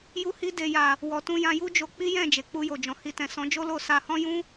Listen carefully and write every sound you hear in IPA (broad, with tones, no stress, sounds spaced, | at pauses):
j u˧ h i˧ d e˨ j a˨ | w ɔ˨ t ũ˧ j ã˧ j u˦ d͡ʒ o˧ k͡p i˦ j ɛ̃˦˨ d͡ʒ e˨ k͡p u˧ j o˨ d͡ʒ ɔ̃˨ h i˧ t ɛ̃˨ s ɔ̃˨˦ d͡ʒ o˦ l o˦˨ s a˧ h ɔ̃˦ j ũ˦